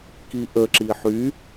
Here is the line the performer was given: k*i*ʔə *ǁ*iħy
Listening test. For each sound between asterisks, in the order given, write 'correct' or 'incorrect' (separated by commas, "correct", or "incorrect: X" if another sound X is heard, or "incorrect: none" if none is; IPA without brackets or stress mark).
correct, correct